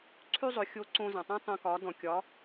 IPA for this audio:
ǀʰ ʉ˥ zˤ ɵ˩˧ xʲ o˧˥ ǀ õ˧ z ã˩ tˤ ã˥ tˤ õ˧ k ɒ˩˧ d ɔ̃˩ kʲ ɒ˩˧

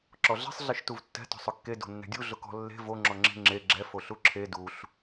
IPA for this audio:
ǁ ɔ ɮ ɛ̤ sˤ ɮ e ʃ t u v tː ɛ̤ t ɔ̤ sˤ ʊ kː e d o̤ nː ɛ̤ dʲ u ɮ ʊ k ɔ̤ lː e̤ v o ŋ͡ǁ ɔ ŋ͡ǁ e̤ ŋ͡ǁ e ɡ͡ǁ ɛ f o ɬ u ǁʰ e d u ɬ

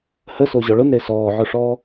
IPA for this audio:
h ə s o ʑ ɔ ɭ ʊ n ɾ e s ɔː ʕ ʊ ʂ ɔː

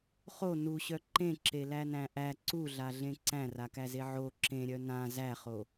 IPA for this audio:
χ o n u ɕ œ ǃ ẽ ǁ e l æ n æ̃ ʔ æ ǀ u ɮ a ɮ ẽ ǀ æ̃ r a k æ z e ʕ o ǁ ẽ ɾʲ œ n ã z æ χ o

